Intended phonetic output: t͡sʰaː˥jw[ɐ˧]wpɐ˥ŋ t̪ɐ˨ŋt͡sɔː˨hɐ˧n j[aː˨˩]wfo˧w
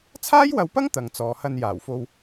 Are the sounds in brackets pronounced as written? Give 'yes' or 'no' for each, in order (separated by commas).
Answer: yes, yes